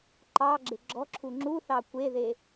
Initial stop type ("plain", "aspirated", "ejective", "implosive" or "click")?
click